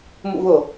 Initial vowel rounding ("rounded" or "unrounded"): rounded